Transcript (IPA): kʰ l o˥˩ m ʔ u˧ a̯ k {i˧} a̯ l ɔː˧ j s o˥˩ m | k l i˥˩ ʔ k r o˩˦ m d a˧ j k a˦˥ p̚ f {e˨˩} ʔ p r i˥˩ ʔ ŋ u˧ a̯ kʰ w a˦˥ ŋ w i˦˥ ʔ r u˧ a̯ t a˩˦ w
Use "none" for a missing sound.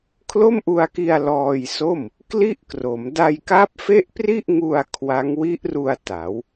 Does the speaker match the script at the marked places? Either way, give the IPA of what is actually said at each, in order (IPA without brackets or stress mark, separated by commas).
i˧, e˥˩